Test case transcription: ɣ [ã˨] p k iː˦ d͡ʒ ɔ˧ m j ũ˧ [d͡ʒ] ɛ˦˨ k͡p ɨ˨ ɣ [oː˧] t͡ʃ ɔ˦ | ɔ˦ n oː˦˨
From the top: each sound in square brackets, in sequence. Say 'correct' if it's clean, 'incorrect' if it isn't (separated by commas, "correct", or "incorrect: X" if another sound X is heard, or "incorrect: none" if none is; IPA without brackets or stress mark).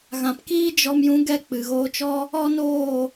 correct, incorrect: ɡ, correct